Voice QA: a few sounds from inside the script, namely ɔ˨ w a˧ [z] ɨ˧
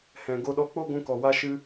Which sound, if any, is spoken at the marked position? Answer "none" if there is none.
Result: ʃ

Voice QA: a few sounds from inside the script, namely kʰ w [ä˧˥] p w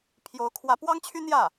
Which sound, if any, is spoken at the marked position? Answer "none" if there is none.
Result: ä˧˥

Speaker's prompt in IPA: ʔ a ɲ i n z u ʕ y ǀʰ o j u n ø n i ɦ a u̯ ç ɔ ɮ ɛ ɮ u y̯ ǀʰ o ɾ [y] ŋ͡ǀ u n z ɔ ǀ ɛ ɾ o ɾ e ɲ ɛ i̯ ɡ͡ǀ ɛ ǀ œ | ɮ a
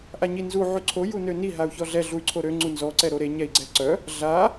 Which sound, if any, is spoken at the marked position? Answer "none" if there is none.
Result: ø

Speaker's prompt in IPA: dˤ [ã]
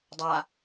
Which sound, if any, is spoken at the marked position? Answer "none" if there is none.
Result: a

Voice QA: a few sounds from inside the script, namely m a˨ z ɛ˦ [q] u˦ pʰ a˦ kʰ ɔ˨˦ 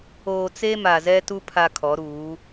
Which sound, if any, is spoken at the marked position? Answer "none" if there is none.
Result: t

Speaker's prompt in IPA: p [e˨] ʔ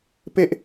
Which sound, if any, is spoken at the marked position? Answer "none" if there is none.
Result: e˦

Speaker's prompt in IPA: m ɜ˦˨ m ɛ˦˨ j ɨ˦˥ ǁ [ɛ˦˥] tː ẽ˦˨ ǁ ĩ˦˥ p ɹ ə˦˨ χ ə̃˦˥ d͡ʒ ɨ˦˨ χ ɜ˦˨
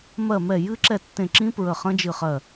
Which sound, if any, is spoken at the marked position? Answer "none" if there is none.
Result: ɛ˦˨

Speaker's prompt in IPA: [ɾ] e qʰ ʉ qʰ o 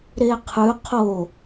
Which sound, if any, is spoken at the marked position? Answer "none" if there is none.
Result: ɾ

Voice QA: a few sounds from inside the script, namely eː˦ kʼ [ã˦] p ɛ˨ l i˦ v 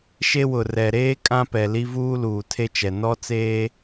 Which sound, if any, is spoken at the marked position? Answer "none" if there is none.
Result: ã˦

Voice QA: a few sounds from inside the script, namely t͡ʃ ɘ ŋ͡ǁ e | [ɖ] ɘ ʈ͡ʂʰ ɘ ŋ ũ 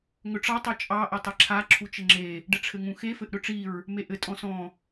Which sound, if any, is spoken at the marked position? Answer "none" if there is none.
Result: ɖ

